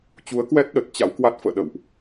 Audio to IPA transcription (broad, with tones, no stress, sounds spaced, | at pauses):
t͡ɕ u˨˦ ə̯ k w ɛ˦˥ t̚ ɗ ə˨˩ t̚ t͡ɕ a̰˧˥ w k w a˦˥ t̚ f ə̰ː˧˨ ɗ ə̰˧˨ w ʔ